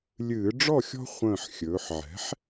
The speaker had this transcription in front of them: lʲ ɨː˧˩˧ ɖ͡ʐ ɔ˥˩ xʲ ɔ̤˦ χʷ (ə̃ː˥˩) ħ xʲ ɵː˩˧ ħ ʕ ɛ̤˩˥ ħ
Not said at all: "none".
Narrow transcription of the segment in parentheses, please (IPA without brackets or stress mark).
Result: ə̃ː˧˩